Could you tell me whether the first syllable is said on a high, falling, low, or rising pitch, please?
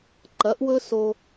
rising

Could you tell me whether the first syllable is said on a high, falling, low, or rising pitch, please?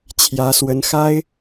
rising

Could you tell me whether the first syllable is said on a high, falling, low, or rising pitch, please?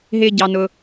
high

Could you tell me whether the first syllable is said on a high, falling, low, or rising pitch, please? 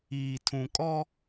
low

